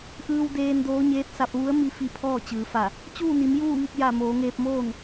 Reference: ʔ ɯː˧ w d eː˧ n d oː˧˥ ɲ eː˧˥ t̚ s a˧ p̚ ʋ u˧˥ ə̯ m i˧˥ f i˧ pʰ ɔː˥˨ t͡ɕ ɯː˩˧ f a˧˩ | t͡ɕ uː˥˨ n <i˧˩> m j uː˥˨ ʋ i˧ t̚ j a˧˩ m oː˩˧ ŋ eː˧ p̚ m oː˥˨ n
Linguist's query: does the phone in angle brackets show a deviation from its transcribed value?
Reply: yes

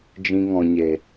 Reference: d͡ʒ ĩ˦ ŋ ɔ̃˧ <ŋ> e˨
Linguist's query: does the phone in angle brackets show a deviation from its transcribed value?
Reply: yes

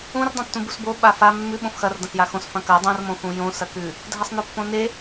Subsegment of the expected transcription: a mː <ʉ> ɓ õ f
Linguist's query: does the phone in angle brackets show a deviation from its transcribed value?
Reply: no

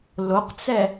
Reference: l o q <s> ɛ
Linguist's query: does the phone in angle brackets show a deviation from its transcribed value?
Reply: yes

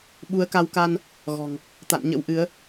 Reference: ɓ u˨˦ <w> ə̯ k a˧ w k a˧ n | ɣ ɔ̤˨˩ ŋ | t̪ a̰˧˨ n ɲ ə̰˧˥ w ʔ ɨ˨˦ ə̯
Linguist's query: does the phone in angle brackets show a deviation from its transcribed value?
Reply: yes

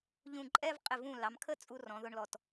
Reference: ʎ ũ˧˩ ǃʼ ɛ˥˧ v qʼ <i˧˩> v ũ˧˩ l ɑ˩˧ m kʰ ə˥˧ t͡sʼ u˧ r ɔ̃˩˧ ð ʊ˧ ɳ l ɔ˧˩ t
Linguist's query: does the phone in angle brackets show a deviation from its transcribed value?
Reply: yes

